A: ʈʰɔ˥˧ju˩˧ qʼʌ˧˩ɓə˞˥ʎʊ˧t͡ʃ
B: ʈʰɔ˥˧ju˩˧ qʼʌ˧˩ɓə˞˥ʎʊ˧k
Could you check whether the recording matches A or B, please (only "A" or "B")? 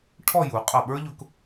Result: B